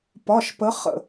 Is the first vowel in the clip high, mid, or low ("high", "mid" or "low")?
low